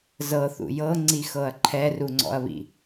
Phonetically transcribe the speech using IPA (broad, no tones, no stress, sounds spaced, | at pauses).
z ɤ θ ṵ j ɤ ŋ͡ǀ i x ɤ ɐ̯ ǃʰ ɛ r u ŋ͡ǀ ɔ̰ ɐ̯ β ḭ